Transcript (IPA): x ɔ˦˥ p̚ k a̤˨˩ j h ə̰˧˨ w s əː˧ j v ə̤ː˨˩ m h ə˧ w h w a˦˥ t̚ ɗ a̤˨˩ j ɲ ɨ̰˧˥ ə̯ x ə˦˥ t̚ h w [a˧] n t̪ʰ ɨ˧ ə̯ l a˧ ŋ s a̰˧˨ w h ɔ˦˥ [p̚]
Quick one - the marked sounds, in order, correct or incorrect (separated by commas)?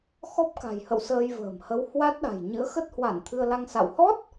incorrect, incorrect